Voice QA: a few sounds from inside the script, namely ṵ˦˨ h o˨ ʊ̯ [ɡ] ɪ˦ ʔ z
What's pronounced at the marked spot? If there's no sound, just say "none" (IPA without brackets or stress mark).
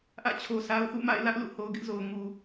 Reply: ɡ